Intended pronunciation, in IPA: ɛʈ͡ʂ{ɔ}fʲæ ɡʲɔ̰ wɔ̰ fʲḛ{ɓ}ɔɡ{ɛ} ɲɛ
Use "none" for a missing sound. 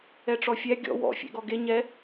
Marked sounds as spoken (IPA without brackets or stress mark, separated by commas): ɔ, ɡ, e